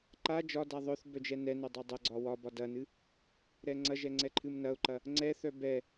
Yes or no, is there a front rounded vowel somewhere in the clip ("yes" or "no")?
yes